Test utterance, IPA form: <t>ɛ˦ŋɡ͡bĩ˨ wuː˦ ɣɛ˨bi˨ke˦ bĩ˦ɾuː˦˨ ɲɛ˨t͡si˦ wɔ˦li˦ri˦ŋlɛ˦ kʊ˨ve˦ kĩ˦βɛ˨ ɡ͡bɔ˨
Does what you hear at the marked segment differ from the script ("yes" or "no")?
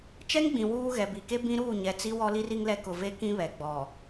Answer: yes